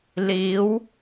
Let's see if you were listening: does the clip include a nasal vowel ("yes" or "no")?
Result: no